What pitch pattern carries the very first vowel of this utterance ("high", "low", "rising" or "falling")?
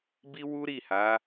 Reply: high